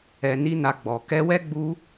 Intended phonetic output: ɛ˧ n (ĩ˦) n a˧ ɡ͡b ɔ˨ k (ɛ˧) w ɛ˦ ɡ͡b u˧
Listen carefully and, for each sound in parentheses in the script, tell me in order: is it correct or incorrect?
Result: incorrect: i˦, correct

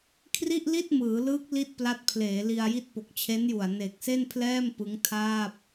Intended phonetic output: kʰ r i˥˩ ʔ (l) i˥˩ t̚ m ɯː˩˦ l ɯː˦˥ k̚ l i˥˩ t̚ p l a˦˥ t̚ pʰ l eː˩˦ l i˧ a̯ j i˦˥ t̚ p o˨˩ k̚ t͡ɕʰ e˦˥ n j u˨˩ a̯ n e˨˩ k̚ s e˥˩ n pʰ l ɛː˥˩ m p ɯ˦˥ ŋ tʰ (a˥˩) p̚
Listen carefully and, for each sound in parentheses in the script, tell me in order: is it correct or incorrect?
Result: correct, incorrect: aː˥˩

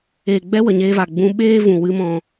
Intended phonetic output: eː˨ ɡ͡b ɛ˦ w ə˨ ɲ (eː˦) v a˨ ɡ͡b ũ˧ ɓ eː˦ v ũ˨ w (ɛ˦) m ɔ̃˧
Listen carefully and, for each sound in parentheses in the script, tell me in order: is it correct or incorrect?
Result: incorrect: eː˧, incorrect: ɨ˦

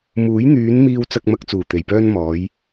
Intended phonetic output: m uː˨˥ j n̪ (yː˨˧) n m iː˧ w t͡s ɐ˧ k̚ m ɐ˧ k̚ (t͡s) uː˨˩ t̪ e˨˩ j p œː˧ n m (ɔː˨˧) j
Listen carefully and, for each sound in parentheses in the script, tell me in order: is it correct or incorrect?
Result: correct, correct, correct

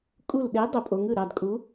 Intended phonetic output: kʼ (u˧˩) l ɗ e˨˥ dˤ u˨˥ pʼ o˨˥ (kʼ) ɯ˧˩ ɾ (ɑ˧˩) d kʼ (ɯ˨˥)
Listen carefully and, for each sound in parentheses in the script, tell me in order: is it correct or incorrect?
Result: correct, incorrect: ŋ, correct, incorrect: u˨˥

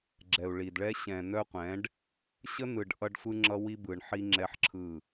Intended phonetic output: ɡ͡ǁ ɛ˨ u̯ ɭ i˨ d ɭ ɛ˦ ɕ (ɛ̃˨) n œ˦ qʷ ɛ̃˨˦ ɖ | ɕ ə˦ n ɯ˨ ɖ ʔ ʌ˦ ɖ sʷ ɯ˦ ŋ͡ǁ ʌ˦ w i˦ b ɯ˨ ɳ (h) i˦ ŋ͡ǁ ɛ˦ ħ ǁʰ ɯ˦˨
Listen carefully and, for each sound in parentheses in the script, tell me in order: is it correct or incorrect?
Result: correct, incorrect: ħ

